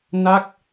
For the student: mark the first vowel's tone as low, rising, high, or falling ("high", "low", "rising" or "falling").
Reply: falling